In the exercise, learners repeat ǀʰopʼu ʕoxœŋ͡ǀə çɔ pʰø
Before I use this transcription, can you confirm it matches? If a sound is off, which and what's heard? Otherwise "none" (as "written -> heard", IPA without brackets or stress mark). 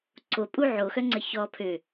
none